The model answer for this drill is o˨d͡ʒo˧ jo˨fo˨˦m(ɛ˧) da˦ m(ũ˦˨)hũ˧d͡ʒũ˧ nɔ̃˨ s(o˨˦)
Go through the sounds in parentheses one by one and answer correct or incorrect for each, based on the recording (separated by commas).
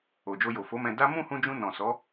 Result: incorrect, correct, incorrect